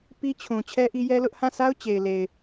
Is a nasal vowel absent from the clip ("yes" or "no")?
no